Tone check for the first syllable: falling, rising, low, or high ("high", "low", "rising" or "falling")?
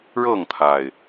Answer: falling